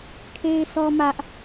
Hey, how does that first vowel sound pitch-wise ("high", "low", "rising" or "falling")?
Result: high